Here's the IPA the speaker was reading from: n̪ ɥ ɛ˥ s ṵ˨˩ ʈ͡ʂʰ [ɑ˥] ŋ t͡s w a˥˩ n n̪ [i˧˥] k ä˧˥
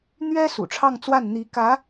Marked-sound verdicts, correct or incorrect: incorrect: ɑ˥˧, correct

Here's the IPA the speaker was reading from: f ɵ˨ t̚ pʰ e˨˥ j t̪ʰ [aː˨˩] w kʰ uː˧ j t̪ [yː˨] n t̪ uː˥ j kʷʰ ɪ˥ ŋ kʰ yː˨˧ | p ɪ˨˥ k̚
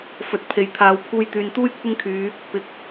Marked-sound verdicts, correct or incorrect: incorrect: aː˨, correct

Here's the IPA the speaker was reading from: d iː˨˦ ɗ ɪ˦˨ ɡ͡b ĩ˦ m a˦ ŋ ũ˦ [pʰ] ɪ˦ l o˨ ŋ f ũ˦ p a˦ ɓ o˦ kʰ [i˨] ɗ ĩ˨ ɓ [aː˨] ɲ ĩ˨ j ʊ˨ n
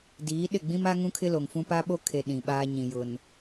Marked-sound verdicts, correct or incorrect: incorrect: kʰ, incorrect: e˨, incorrect: aː˦

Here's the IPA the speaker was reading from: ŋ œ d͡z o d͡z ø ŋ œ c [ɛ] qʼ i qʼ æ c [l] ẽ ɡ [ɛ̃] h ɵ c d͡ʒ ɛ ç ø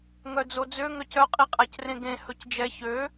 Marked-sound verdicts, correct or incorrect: incorrect: œ, incorrect: r, incorrect: ẽ

